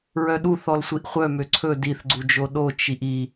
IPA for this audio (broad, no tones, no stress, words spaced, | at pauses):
ɹœɗuθ ɔlsʷiʔχʷœ møǀʰɵ diθɡ͡ǀud͡ʒo ɗot͡ʃ iʔi